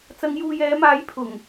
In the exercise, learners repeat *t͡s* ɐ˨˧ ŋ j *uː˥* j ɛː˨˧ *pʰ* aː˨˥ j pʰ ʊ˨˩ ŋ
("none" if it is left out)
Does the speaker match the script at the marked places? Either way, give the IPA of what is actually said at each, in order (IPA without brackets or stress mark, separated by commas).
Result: t͡s, uː˨, m